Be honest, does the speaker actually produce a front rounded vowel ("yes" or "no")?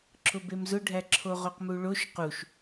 no